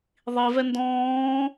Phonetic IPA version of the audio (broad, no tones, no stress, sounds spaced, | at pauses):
ðˤ i v ɛ n d ɔ̃ː